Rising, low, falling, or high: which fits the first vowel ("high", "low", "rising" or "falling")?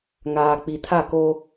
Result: low